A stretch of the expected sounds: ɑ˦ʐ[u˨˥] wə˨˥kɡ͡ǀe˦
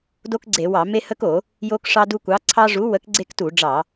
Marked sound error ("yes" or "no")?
no